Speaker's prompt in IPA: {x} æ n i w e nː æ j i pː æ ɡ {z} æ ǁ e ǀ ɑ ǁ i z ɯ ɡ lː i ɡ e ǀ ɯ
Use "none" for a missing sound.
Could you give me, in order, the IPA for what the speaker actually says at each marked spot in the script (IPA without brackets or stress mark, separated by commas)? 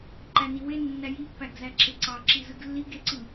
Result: ǃ, z